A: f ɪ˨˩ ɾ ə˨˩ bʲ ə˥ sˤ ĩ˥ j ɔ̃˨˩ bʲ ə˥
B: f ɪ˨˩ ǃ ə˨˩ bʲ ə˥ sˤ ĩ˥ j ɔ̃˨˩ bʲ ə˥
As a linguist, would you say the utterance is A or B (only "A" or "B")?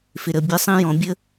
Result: A